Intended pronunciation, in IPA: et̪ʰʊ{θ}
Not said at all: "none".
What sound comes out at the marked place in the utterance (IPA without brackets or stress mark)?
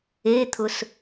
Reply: s